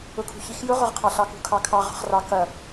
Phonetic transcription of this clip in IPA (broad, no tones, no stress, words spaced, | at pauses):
ʊkʰṳçixjʊ ʁʊʁqʰɑɬɑkṳ kʰɑkʰɑ ʁɑ̤χrɑ kɐ